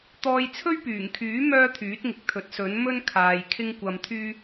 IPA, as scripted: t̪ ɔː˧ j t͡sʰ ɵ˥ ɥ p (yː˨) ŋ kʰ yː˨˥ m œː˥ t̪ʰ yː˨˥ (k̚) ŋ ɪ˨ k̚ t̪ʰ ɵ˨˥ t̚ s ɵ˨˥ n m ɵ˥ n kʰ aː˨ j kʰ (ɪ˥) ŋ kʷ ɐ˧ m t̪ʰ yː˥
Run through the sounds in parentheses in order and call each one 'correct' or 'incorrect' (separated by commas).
incorrect, incorrect, correct